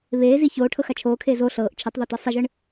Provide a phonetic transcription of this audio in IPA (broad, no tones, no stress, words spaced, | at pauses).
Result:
βeːzi çoːʈʰɤxa t͡ʃʰoːkʰeːz o ɬɤːʔ t͡ʃʰitˤðˤotɤ sˤeʒɯɳ